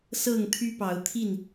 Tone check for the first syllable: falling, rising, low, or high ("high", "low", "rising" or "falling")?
falling